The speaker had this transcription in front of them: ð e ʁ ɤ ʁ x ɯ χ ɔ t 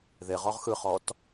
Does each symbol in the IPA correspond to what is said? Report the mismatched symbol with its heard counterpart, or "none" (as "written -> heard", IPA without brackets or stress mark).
ɤ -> ɔ